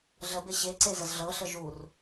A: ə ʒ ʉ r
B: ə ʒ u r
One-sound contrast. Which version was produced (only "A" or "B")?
B